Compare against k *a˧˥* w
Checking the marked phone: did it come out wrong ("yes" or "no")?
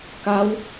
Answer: no